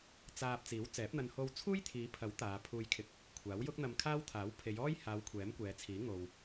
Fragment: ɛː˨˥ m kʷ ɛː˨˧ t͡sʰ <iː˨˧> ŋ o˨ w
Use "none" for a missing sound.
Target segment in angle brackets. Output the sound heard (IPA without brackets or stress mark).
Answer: iː˨˥